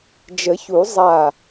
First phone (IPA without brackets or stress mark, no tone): d͡ʒ